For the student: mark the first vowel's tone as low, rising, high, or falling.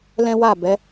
high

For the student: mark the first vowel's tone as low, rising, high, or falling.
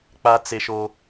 high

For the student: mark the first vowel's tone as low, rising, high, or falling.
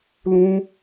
high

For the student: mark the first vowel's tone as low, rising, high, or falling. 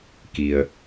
low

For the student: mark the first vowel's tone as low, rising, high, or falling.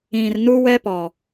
low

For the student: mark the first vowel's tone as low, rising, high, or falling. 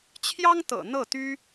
high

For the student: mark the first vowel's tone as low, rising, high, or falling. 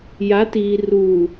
rising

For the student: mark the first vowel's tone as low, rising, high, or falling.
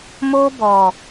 high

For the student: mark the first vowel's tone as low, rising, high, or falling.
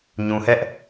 low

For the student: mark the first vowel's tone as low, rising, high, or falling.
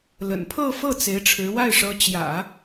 low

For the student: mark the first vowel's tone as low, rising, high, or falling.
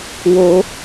high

